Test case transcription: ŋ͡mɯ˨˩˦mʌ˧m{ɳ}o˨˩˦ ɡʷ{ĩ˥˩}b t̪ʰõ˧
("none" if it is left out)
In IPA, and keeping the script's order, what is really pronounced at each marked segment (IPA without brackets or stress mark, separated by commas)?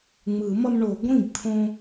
ɳ, ĩ˥˩